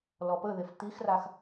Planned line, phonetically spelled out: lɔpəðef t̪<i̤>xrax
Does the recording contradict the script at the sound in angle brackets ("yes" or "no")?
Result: yes